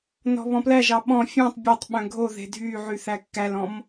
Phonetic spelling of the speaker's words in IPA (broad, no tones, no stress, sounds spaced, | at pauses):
n ɔ̤ β ɔ̃ p l æ ʒ ɑ ɓ ɔ̃ fʲ ɔ̃ tˤ bʲ œ tˤ ɓ œ̃ ɡʱ o ð e̤ dʱ y ʕ y θ æ kː æ l ɔ̃ m